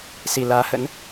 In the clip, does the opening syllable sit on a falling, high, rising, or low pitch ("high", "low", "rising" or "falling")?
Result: low